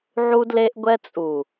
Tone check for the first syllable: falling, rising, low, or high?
high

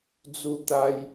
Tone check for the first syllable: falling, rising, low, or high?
falling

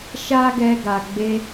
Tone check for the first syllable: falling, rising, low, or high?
high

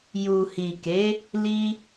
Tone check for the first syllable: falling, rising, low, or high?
low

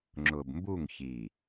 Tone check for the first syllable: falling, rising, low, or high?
low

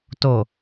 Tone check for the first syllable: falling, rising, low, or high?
low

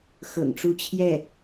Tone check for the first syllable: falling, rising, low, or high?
low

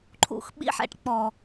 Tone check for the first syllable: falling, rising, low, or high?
low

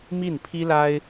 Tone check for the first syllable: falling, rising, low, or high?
falling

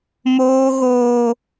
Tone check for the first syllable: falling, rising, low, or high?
high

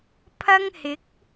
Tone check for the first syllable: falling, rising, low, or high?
high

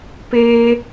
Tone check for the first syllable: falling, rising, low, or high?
high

